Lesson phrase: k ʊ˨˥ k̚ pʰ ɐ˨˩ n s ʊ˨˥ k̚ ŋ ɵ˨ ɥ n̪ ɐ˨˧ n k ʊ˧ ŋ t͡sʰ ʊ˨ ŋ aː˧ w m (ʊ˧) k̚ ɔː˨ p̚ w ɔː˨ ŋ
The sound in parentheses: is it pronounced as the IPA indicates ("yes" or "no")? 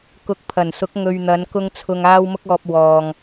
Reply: yes